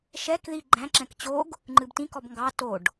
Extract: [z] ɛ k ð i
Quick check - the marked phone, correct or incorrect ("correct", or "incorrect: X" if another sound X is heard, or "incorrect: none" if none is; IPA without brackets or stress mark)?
incorrect: ʃ